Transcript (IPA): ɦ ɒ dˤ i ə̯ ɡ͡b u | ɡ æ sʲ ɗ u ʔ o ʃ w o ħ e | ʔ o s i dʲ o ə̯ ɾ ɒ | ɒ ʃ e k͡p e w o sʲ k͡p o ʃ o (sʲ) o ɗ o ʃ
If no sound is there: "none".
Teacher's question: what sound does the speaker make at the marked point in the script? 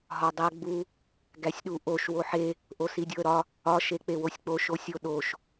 sʲ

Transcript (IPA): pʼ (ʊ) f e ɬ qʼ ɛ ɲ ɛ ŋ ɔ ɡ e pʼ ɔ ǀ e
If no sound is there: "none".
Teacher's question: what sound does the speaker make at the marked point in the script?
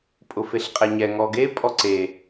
ʊ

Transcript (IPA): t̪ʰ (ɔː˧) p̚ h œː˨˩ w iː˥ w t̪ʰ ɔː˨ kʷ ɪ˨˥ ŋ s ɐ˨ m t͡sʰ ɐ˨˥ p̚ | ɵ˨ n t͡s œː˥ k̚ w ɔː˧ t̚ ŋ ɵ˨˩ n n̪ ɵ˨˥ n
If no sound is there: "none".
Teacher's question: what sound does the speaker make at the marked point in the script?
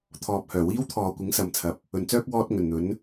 ɔː˨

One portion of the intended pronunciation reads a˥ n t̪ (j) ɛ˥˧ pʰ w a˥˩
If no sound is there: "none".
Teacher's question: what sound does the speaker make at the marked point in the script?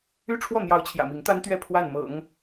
ɥ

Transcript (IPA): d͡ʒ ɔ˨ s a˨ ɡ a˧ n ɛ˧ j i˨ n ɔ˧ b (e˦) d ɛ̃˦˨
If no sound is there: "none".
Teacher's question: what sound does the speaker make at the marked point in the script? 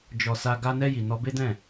e˦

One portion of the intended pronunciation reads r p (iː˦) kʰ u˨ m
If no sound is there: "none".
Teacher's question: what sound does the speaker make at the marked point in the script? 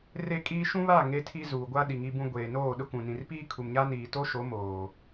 iː˦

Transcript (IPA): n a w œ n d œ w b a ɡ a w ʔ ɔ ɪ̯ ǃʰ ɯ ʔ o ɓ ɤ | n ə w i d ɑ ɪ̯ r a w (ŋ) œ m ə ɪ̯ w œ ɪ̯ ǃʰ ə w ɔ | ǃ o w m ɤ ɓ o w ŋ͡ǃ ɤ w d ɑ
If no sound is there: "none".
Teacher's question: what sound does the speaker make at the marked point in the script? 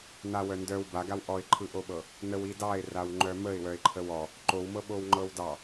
ŋ͡ǃ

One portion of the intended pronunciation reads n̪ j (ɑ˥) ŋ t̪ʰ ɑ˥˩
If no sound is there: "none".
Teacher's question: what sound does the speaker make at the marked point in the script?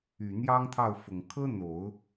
ɑ˥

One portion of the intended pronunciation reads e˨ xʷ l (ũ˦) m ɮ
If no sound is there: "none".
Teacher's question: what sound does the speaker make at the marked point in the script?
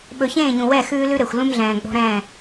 ũ˦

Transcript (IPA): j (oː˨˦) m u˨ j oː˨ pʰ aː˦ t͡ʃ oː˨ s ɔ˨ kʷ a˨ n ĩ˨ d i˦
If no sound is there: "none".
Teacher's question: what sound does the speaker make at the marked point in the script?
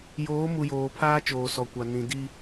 oː˨˦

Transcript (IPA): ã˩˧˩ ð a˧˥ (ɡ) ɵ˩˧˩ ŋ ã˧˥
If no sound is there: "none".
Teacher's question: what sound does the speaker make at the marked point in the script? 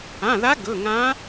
ɡ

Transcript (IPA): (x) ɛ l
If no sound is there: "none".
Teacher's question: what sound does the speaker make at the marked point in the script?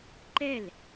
ǃ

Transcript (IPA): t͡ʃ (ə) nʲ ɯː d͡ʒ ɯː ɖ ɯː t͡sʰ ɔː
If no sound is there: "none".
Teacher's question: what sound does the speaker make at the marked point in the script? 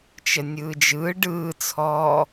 ə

